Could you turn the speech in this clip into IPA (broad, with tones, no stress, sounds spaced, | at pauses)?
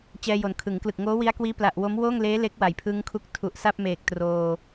t͡ɕ ɛː˧ j o˩˦ n kʰ ɯ˩˦ ŋ k l ɯ˨˩ k̚ ŋ oː˦˥ w i˦˥ a̯ k w iː˦˥ p l a˨˩ ʔ w o˦˥ m w oː˥˩ ŋ l eː˦˥ l e˦˥ k̚ w a˩˦ j pʰ ɯ˦˥ ŋ kʰ u˦˥ k̚ tʰ u˨˩ ʔ s a˥˩ p̚ m eː˨˩ k̚ t r oː˧